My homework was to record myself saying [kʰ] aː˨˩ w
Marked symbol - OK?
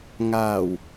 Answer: no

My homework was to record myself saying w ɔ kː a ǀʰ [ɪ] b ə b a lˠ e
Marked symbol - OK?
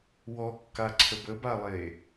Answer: no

